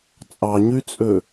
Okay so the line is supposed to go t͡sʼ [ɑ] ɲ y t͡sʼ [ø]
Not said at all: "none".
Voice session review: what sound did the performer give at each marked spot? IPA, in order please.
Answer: ɑ, ø

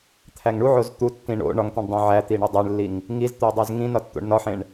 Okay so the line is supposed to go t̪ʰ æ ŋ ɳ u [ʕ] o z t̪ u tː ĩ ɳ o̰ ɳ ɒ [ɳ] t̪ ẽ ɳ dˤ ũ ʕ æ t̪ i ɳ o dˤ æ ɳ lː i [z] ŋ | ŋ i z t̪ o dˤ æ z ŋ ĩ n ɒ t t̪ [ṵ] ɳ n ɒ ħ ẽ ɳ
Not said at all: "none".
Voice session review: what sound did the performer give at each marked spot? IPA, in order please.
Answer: ʕ, ŋ, none, o̰

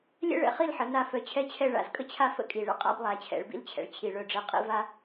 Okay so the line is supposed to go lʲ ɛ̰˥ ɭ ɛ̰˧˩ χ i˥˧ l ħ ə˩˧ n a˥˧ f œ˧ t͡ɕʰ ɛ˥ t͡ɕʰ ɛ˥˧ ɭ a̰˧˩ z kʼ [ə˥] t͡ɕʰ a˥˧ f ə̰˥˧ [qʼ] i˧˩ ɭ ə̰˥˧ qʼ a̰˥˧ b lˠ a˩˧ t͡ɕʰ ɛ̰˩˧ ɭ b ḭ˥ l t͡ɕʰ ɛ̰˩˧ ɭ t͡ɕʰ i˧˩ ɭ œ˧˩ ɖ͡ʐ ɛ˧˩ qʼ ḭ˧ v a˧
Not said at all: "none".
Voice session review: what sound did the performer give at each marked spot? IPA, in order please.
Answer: ə˥, kʼ

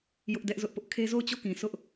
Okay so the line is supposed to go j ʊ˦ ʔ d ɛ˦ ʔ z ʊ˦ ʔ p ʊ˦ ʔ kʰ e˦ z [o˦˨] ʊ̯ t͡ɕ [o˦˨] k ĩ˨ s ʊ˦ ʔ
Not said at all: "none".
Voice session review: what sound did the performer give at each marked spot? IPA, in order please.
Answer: o˦˨, o˦˨

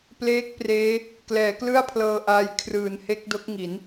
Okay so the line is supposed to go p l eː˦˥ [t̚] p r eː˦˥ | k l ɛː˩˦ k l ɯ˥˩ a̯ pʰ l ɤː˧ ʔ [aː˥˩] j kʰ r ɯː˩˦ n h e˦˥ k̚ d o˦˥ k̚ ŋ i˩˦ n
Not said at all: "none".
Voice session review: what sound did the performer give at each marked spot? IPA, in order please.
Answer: k̚, aː˧

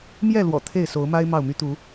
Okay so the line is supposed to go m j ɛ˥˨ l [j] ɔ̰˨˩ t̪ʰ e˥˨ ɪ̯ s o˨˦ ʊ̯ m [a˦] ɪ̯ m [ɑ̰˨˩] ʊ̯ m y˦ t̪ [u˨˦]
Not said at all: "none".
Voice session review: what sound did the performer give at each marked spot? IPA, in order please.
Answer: w, a˦, ɑ˥˨, u˨˦

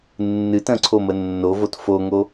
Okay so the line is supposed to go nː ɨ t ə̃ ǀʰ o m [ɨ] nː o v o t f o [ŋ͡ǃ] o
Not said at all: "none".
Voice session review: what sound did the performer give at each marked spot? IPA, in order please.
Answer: ə, ŋ

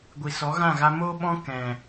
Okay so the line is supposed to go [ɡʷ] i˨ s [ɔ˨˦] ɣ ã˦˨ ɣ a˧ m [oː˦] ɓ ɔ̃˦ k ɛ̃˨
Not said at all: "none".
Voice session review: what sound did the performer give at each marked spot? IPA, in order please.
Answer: ɡʷ, ɔ˨˦, oː˦

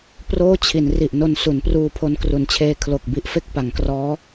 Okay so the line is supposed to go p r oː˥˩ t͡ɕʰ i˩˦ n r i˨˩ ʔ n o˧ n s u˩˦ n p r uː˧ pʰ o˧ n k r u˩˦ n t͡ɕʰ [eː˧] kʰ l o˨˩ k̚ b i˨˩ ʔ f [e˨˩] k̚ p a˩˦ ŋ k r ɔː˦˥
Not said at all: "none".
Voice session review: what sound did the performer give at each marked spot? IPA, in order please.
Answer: eː˧, e˦˥

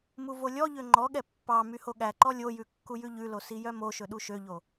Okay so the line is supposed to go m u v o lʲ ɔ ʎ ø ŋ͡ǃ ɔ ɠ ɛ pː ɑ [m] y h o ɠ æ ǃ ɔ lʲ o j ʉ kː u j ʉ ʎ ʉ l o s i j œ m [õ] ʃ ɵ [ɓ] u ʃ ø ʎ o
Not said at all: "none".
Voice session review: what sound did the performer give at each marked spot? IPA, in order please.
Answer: m, o, ɗ

